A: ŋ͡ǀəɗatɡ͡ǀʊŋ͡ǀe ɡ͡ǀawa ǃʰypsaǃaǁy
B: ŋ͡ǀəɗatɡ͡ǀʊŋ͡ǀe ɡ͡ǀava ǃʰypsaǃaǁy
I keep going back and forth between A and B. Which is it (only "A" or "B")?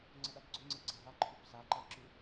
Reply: B